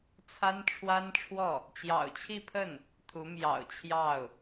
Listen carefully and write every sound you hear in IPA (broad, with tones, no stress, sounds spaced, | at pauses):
t͡sʰ a˥ n ʈ͡ʂʰ w a˥ n ʈ͡ʂʰ w ɔ˥˩ | t͡ɕ j ɑ̰˨˩ ʊ̯ t͡ɕʰ i˥˧ pʰ ə˥˩ n | t̪ʰ u˧˥ m j ɑ̰˨˩ ʊ̯ t͡ɕʰ j ɑ˥˩ ʊ̯